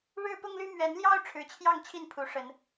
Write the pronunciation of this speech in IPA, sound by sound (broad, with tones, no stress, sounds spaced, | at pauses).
ɻ ɻ̩˦ p ʊ˦ ŋ l y˦ m ɥ ɛ˨˦ n l j ɑ˦ ʊ̯ ʈ͡ʂʰ ɻ̩˨˦ t͡ɕʰ j ɑ˥˨ ŋ t͡ɕʰ i˥˨ n pʰ u˨˦ ʂ ə˨˦ n